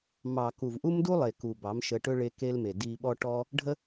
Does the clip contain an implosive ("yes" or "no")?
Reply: yes